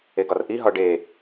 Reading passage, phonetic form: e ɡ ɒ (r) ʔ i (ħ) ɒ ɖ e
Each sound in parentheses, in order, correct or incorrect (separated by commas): correct, incorrect